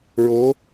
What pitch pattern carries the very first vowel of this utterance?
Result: rising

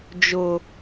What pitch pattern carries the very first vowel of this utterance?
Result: low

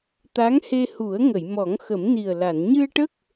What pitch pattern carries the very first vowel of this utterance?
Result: rising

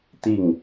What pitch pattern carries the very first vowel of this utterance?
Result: falling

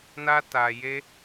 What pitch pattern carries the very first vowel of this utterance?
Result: high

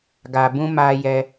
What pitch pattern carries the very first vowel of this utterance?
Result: low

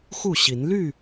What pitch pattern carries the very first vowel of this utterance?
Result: falling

